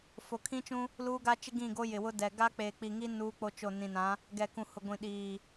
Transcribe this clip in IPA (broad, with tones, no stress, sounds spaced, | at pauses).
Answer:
f o˨ kʰ ĩ˦ t͡ʃ ũ˦ | l uː˦ ɡ a˦ t͡ʃ ɪ˦ ɡ ĩ˦˨ ɡ o˦ j ɪ˨ w ʊ˦ d ɛ˨ ɡ a˦ k͡p eː˨ k͡p i˨ ŋ i˦ n uː˦ k͡p o˦ t͡ʃ o˦˨ n ĩ˨ n ã˨˦ | ɡ ɛ˨ k ũ˨ h ʊ˨ ɡʷ ĩ˨ ɗ iː˨